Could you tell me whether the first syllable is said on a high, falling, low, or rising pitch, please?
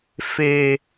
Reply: high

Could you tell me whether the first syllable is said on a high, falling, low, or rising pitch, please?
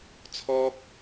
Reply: high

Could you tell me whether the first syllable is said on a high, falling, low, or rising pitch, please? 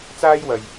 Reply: high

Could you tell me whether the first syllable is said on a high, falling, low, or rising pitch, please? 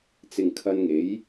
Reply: low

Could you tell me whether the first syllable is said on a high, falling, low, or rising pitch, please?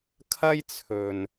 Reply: high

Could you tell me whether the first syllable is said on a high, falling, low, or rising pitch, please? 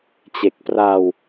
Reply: low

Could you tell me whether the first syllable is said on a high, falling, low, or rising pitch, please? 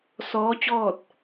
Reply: rising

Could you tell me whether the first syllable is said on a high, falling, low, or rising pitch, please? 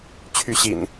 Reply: rising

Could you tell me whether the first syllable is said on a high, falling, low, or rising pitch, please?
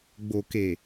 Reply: low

